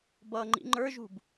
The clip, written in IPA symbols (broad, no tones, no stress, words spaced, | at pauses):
bʌ ŋ͡ǃḭŋ͡ǃə˞ʒṳb